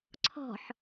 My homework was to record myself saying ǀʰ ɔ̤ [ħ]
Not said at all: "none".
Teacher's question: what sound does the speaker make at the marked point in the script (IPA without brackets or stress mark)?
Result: ħ